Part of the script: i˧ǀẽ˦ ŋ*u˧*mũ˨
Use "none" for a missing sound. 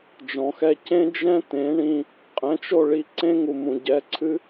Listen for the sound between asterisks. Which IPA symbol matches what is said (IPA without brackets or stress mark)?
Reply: u˨